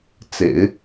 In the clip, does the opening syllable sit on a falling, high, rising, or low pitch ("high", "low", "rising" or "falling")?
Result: low